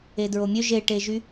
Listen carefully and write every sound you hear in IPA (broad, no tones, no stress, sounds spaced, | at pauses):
e d ɹ o mʲ ø ʒ e ʈ e ʒ y